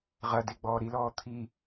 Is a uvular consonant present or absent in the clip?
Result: present